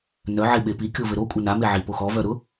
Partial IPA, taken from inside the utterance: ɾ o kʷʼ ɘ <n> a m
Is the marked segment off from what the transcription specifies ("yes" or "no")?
no